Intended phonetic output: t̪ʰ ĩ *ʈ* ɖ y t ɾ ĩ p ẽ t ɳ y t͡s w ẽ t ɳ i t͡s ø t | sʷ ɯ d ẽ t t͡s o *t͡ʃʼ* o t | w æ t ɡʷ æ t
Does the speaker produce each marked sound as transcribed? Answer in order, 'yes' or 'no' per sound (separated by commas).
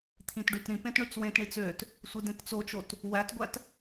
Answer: no, no